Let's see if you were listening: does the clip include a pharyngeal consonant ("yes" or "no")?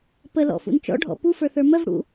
no